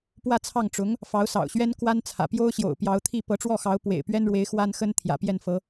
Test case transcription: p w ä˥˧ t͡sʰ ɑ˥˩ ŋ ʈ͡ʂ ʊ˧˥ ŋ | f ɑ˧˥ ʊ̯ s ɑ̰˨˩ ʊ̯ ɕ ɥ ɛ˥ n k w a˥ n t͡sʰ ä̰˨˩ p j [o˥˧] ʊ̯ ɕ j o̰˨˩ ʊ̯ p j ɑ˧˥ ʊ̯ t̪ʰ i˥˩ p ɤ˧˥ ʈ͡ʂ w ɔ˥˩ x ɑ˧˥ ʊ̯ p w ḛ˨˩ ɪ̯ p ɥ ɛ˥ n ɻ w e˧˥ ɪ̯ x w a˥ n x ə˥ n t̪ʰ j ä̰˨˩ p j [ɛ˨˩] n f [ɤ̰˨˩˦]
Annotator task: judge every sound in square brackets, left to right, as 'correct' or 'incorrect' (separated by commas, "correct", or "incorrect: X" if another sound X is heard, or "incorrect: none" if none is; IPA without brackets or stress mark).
incorrect: o˥, incorrect: ɛ˥˩, incorrect: ɤ˧˥